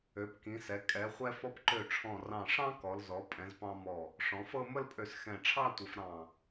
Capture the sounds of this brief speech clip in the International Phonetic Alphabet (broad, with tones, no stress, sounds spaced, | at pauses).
ø˩˧ p k ĩ˩˧ s ɛ˩˧ kʼ ɛ˩˧ χʷ ɛ˧ f ɔ˧ p ǃ ø˧˩ ʈ͡ʂʰ ɔ̃˧˩ r ɑ̃˧˩ ʂ ɑ̃˥ k ɔ˩˧ l z ɔ˩˧ pʼ ɛ̃˩˧ z p ɑ̃˧ m ɔ˧˩ | ʂ ɔ̃˩˧ f ɤ˥˧ m ə˥˧ l pʼ ø˧˩ s x ɛ̃˧˩ ʈ͡ʂʰ ɑ˥˧ tʷ ɘ˩˧ f ɾ ɑ̃˧˩